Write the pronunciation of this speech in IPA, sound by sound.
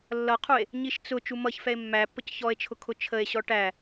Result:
lː ʌ qʰ u e̯ | ɲ i ʃ t͡s ʊ t͡ʃ u m ʌ ç f ɛ e̯ mː æ pː ə c ç ɔ e̯ t͡ʃʰ ʊ kʰ ʊ t͡ʃʰ ə e̯ ɕ ɔ ʈ æ

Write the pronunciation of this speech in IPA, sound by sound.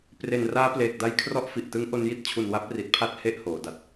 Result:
p r e˨˩ n r aː˦˥ p l eː˨˩ k̚ d a˦˥ j kʰ r ɔ˦˥ ʔ f i˨˩ ʔ t ɯ˦˥ ŋ ʔ o˧ n j i˦˥ t̚ t͡ɕʰ u˨˩ n w a˦˥ p̚ r i˨˩ t̚ pʰ a˦˥ t̚ h e˦˥ ʔ h oː˩˦ d a˨˩ t̚

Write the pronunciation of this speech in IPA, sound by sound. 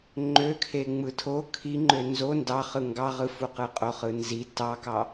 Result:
ŋ͡ǃ ø kʰ e ŋ͡m ɯ tʰ o kʰ i ŋ͡ǃ ø n z o n d ɑ χ ɯ ŋ ɡ ɑ ʁ ɯ f u q ɯ qʼ o χ ɯ n z i t ɑ k ɑ

